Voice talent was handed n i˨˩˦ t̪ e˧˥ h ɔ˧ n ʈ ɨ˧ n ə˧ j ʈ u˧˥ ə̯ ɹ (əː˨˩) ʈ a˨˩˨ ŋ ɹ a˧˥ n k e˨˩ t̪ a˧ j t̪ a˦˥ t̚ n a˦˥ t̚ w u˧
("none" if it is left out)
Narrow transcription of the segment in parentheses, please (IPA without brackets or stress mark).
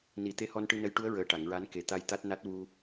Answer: əː˨˩